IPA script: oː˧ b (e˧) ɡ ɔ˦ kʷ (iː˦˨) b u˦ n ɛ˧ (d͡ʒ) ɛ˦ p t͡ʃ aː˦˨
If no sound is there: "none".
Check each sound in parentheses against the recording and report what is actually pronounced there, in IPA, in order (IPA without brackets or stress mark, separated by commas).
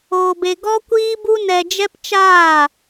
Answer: e˧, iː˦, d͡ʒ